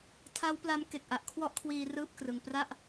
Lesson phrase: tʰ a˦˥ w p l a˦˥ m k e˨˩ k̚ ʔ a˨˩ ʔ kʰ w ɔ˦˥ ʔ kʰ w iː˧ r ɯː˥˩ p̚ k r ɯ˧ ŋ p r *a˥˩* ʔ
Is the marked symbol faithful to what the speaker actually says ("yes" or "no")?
yes